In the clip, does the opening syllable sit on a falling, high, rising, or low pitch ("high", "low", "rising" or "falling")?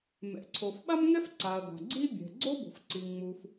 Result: low